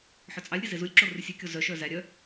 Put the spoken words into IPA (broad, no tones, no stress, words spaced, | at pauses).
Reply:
ħœt͡sʼɑlʲɾʲe zezulʲǁo rʉsʲʉkʲo zœʃœ zæɾʲœ